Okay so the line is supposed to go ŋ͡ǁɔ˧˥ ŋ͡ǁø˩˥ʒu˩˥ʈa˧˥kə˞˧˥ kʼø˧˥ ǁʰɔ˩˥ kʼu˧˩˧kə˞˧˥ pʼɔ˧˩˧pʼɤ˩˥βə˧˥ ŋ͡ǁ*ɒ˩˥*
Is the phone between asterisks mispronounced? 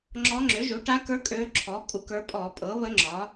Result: no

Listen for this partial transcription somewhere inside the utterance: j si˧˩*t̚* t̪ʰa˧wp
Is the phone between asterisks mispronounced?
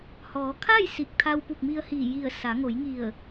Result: yes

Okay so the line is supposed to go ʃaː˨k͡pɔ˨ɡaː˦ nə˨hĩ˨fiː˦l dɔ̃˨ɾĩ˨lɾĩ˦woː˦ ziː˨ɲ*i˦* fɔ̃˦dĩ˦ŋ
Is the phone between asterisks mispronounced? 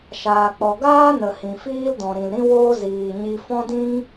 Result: yes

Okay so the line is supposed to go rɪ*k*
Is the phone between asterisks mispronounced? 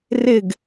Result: yes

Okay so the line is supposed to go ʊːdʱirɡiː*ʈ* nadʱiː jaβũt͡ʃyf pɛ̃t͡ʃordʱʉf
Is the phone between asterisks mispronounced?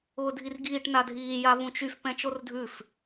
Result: no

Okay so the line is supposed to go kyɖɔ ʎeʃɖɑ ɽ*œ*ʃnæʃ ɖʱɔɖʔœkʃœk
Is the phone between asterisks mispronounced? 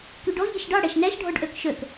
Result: yes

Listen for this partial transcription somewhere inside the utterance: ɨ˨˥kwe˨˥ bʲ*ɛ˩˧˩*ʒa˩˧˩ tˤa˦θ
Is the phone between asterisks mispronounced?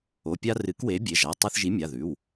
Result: yes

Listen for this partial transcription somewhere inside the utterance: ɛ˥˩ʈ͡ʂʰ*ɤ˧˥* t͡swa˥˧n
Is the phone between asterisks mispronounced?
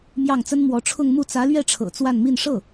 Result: yes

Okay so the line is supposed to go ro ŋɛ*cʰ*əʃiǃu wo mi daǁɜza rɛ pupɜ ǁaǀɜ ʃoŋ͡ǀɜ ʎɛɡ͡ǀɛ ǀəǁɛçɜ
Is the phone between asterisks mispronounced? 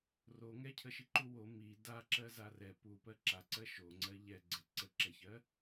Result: no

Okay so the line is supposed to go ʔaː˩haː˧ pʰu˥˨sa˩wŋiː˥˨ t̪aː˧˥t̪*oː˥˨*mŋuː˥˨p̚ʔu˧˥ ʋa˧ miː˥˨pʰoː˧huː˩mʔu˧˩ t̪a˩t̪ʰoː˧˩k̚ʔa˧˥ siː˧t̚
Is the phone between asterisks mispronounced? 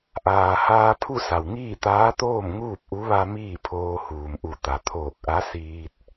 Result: no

